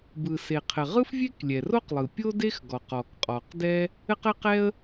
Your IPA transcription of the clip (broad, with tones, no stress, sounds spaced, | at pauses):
b ɯ˩ s e˩ qʰ ɘ˩ ʁ ɯ˥ f vʲ e˥ k lʲ ɛ˩ r o˥ q lˠ ɯ˩ pʲ o˥ d e˥ x ɡ ɔ˩ q ɔ˩ k qʼ ɔ˩ q d ɛ˥ | ɘ˥ q ɘ˥ q ɛ˥ ə̯